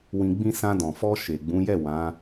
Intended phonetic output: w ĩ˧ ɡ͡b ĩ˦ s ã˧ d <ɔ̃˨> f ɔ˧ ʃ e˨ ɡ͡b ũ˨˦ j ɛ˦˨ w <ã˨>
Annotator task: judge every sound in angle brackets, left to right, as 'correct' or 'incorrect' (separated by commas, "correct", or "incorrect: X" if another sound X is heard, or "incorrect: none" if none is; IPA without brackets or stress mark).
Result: correct, incorrect: ã˨˦